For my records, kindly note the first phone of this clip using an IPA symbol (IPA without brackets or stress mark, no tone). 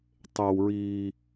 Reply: tˤ